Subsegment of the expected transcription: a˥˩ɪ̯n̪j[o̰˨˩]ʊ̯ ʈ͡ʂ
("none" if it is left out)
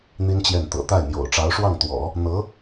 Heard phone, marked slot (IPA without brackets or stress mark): o̰˨˩